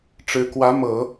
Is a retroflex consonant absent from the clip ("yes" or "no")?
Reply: no